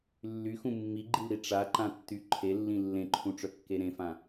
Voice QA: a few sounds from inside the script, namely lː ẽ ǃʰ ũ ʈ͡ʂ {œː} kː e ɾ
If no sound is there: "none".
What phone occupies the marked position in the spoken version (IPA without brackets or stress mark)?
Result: œ